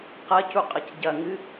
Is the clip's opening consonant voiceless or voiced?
voiceless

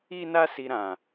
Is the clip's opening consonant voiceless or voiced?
voiced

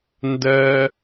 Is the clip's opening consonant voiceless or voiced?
voiced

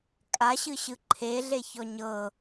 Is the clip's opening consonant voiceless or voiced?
voiceless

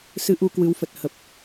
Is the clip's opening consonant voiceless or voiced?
voiceless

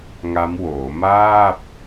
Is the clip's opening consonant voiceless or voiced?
voiced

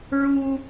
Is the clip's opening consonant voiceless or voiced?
voiced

